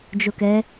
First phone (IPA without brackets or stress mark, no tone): d͡ʒ